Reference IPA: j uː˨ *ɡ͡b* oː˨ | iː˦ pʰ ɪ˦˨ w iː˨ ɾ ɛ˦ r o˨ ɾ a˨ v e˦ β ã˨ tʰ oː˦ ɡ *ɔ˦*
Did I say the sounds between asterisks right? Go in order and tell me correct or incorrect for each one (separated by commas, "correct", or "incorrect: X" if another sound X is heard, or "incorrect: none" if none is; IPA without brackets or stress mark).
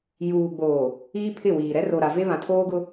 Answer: correct, incorrect: ʊ˦